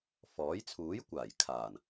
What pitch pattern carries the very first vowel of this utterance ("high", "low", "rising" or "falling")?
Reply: rising